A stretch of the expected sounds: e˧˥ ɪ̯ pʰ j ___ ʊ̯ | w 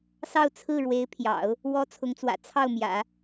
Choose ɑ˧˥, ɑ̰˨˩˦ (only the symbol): ɑ̰˨˩˦